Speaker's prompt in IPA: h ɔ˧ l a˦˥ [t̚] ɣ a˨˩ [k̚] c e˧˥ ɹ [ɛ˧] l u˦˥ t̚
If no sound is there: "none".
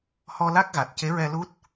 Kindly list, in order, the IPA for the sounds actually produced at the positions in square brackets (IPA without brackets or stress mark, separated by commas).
k̚, t̚, ɛ˧